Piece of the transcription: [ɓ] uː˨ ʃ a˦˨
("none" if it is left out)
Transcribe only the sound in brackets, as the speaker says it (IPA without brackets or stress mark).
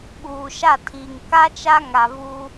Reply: ɓ